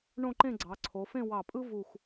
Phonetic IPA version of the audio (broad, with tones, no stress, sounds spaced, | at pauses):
ɳ õ˥˧ ǃ ẽ˥˧ ɡ͡ǀ ɑ˩˧ ǀʰ o˩˧ f ẽ˥˧ w ɑ˧˩ pʼ ɯ˥ v u˧˩ x